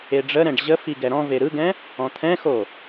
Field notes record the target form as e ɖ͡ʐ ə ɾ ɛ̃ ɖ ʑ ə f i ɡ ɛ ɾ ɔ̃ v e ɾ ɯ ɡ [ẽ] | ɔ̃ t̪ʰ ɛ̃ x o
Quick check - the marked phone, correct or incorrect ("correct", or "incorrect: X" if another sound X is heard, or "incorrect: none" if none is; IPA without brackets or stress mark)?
incorrect: ɛ̃